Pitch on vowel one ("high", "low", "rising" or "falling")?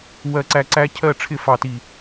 high